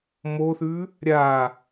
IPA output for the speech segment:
moθʉ | ɾʲa

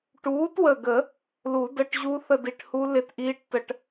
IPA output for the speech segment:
ʈuː˨˥twə˧˩ɡə˨˩˦ | lu˨˩˦də˧˥˧ʈʑu˦˥ θə˥˧di˧˩ʈhu˦˥ lɪ˥˧tʔiː˦˥ʈ tə˧˩ʈ

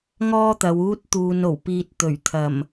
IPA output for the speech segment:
ŋɔː˥t̪ɐ˨˧wuː˥t̚t̪uː˧n o˨˩wpiː˧t̚ t̪ɵ˨˩ɥt̪ʰɐ˨˩m

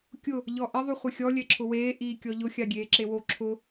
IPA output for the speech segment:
kʲʊ | ʎɔʔɪ ðˤuχʷɪxʲɔ lʲɛǁʰʊweː ʔiːkʲɔʎʊ xʲaɡʲeːǁewo ǁʰʊ

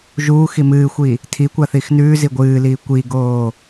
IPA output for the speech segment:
ʒuː ximɨːxʷi | tʰikʷaθix nʉː ziɡʷɨːliː kʷiɡoː

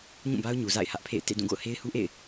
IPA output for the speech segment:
ɲũ˦˨ba˦ʊ̯ɲu˨ za̰˦˨ɪ̯hä˦ʔpʰḛ˦˨ɪ̯ tḛ˦˨dũ˦˨ ɡo̰˦˨ʊ̯he˦ɪ̯hu˦ʔḛ˦˨ɪ̯

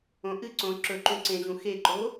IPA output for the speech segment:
õʔɨǀõ ǁɵǃũ ǀẽʑũ xeǃo

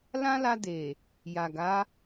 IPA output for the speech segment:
lã˦la˧de˨ | ja˨ɡa˨˦

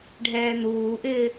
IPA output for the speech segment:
ɖʱɛːn̪uːʔɪː

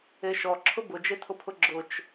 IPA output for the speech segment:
eʃɔǁʰʊ bʊd͡ʒetʰʊpʰʊ ɡ͡ǁʊt͡ʃ

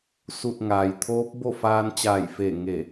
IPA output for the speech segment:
su˧˩t̚ŋaː˩jt̪ʰoː˧˥p̚bo˥˨ faː˧nt͡ɕaː˧˩jfe˧˩ ŋe˧˩

